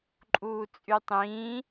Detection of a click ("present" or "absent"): present